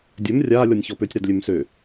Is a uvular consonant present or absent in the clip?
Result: absent